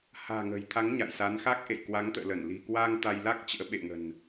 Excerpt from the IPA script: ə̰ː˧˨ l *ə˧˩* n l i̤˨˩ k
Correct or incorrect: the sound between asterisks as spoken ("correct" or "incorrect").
correct